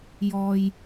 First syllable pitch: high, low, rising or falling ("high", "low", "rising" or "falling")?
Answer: low